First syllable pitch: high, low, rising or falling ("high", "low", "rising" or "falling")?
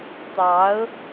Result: rising